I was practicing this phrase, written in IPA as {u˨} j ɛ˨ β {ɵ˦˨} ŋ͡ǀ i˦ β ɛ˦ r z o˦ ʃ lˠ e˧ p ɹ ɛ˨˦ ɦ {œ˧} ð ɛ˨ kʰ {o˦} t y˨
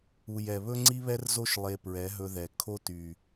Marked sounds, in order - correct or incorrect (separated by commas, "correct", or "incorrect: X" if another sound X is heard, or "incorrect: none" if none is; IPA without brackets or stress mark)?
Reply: correct, incorrect: ɵ˦, incorrect: ɵ˧, correct